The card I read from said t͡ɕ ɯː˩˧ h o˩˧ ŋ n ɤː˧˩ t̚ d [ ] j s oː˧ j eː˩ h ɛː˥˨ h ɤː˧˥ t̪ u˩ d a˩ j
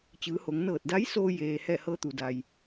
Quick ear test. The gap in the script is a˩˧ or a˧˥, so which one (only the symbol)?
a˧˥